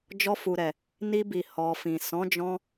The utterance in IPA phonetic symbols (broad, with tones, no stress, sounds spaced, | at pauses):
d͡ʒ ɔ˧ f u˨ ɾ ɛ˨ | n i˧ b i˨ h ɔ˨ f ĩ˨ s ɔ̃˨˦ d͡ʒ ɔ̃˧